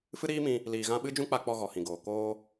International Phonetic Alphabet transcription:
f ɨ˦ ɾ iː˦ m ĩ˧ | l iː˨ ɣ ã˧ ɓ ɨ˦ d͡ʒ ũ˦ k͡p a˧ k͡p ɔ˧ ɣ ɔ˨ h ĩ˨ ɡ oː˨ k oː˧

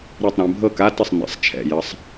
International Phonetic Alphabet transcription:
ɾ ɤ˥˩ tˤ ɾ ɛ̃˩˧ bʱ ɤ˥˩ k a˧˥˧ t ə˥˩ sˤ n ɛ̰˩˧ sˤ t͡ʃʰ ɛ̰˥˩ j ə˧˥˧ sˤ

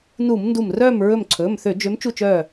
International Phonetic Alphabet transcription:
n u˧˩˧ m n d u˧˩ m r œː˥˨ m ɹ ɵ˧˩ m ǀʰ ɵː˩˧˩ m θ ø˧˩˧ d͡ʒ ø˨˦ m t͡ʃ u˥˨ t͡ʃ œː˥˨

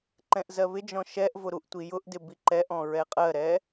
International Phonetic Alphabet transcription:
ǃ ɛ̃ ʔ z ɜ β ɪ d͡ʒ ɔ̃ ʃ ɛ ʔ v ʊ ɾ u ʔ tʷ i j ʊ ʔ d ɪ b i ǃ ɛ ʔ ɔ̃ ɹ ɛ qʼ ɜ ɾ ɛ

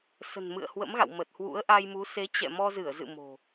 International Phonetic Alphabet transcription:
s ə̤˨˩ n m ɨ̰˧˨ ə̯ h w ə̰˧˥ m ɣ a̰˧˨ w m ə˨˩ t̚ h w ṵ˧˥ ə̯ ʔ a˧ j m u˨˦ s e˨˦ t͡ɕ ɛ̰˧˨ m ɔ˧ z ɨ˧˩ ə̯ z ɨ̰˧˨ m o̤˨˩

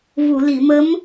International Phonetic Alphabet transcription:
v u˨˩˨ l i˨˩˨ m ə˧˥ m

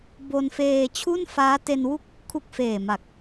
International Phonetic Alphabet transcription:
b o˧ n f eː˧ t͡ɕʰ u˥˩ n f aː˦˥ t e˧ n w u˥˩ k̚ | kʰ u˦˥ k̚ f eː˨˩ m a˨˩ k̚

